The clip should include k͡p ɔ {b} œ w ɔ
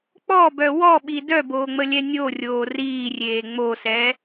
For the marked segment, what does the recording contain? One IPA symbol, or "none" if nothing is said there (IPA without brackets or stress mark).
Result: b